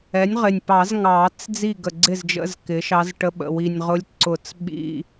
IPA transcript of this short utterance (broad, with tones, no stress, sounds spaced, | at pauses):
ɛ˩˥ nʲ ʁ ɪ˨˩ nʲ p ɑ˨˩˦ z ŋ ɑ˨˩˦ t͡s d͡z i˥˩ ɡ ə˨˩ ɡ͡ǀ ɪ˥˩ z d͡ʒ ə̰˧˥˧ z k ɪ˩˥ ʃ ɑ˧˥ z ʈ ə˧˥˧ ɓ ə̰˨˩ w i˨˩ nʲ ʁ ʊ˧˥ lʲ ǀ ʊ˨˩˦ t͡s ɓ ḭ˧˥˧